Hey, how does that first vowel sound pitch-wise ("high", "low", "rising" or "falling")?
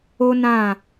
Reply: high